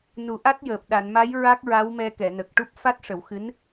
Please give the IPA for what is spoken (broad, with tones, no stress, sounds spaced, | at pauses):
n u˨˩˦ ʔ a˦˥ t̚ j əː˨˩ p̚ ɗ a˨˩˨ n m a˧˥ j ɹ a˦˥ k̚ ɹ a˧˥ w m ɛ˧ k ɛ˨˩˨ n ə˨˩ k̚ ʈ u˦˥ p̚ f a˦˥ t̚ ʂ ə˨˩˦ w x ɨ˧˥ n